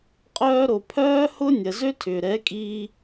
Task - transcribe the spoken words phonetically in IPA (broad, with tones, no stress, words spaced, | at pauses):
qʼœː˦ ɾo˨pʰœː˦hʊ˦ nʲɐ˨zø˦tʰʏː˨ ɾɛ˨˦kʼiː˧